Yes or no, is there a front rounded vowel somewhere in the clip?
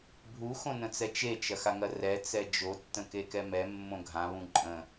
no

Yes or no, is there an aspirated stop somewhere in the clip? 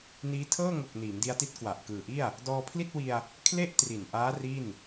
yes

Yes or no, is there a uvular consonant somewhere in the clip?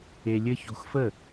no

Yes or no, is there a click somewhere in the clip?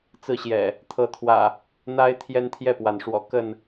no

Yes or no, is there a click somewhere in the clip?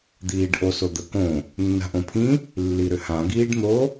no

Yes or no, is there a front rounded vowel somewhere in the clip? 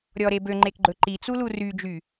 yes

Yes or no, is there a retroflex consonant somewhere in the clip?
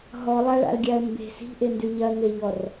yes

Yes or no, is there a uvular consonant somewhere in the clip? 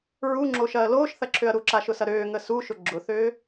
no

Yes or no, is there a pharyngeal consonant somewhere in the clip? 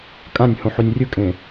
yes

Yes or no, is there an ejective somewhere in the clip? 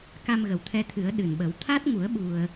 no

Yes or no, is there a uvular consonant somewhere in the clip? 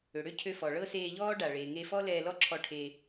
no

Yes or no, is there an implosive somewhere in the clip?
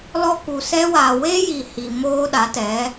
yes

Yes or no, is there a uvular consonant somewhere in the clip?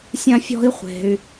yes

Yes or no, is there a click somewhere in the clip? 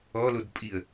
no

